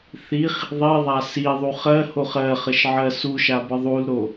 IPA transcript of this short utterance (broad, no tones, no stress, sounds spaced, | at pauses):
θ i χ | ðˤ i ðˤ a s i ðˤ u χ ɜ h o χ ɜ χ ə ʃ ʕ ɜ s u ʃ a b ə ðˤ u l ɾ o